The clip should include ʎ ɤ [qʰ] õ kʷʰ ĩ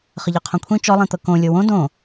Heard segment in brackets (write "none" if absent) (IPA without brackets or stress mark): qʰ